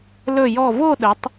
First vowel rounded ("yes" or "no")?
yes